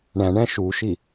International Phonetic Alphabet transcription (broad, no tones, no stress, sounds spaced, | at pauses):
ɳ æ̃ ɳ æ̃ ʃ u ʃ i